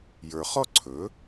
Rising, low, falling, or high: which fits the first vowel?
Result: low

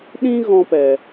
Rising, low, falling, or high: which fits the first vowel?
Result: high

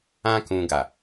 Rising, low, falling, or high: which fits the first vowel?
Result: high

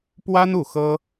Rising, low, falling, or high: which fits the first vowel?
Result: high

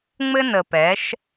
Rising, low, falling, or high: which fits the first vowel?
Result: high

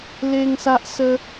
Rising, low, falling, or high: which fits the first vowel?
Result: high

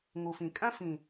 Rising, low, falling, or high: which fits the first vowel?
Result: low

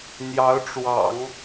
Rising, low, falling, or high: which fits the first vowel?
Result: rising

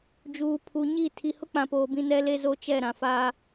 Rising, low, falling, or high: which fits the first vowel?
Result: low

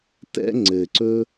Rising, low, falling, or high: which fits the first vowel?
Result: high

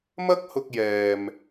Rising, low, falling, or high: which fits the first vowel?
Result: high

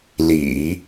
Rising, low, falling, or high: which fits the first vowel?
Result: low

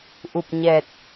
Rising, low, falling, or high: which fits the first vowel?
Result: low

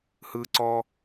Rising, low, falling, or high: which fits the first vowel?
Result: high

